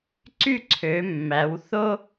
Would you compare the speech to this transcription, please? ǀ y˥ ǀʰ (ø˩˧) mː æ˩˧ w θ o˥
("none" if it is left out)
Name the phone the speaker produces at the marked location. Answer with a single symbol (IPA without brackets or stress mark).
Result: ø˩˧